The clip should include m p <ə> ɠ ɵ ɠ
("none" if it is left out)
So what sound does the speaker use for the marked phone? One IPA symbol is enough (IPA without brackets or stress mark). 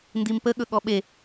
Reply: ə